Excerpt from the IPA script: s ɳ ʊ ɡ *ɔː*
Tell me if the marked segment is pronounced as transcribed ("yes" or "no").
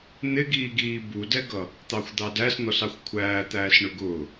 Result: no